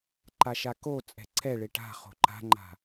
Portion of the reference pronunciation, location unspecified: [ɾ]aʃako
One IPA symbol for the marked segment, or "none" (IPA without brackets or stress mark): ǃ